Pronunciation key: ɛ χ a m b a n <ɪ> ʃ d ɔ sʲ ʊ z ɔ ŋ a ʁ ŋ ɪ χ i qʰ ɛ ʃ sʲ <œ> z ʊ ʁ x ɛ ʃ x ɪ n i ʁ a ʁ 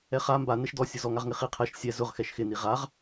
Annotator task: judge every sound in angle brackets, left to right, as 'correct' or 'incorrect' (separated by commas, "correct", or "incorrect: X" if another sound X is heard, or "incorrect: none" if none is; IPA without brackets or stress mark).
incorrect: ɛ, incorrect: ɛ